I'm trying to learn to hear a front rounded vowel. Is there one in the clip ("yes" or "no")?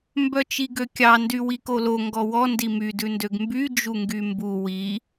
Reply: yes